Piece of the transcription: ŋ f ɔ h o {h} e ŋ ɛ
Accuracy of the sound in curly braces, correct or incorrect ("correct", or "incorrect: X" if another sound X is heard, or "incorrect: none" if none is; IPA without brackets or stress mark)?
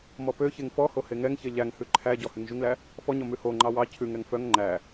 correct